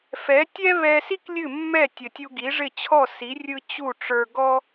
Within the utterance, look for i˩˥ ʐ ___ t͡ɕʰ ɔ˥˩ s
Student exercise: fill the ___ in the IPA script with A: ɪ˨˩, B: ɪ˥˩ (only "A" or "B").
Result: B